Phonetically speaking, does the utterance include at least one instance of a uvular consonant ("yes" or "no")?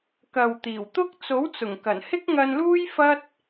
no